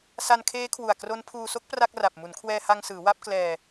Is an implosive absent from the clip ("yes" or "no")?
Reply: yes